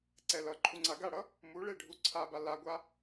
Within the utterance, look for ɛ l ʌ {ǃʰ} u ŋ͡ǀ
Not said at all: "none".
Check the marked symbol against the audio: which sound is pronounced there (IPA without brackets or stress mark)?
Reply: ǃʰ